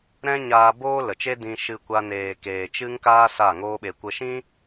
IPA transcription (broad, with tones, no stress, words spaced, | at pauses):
ɾɛ̃˦ɲaː˧ boː˦lə˨t͡ʃe˦ dĩ˧ʃɨ˧kʷa˧neː˨ keː˨t͡ʃɨ˦ŋkaː˦ sa˦˨ŋoː˦ɓe˧kʷə˦ ʃĩ˦